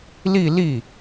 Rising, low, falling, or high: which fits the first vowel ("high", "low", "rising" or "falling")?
falling